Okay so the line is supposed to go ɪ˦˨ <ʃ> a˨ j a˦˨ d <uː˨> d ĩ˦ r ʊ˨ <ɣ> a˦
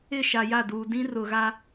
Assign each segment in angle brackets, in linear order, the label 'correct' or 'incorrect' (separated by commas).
correct, correct, correct